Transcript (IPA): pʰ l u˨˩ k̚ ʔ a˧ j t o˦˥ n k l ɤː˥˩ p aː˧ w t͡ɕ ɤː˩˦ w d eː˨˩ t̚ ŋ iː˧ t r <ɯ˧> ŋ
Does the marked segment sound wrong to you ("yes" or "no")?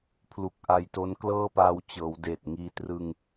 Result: no